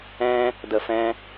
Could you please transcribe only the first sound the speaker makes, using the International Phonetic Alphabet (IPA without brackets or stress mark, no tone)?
ɛ̃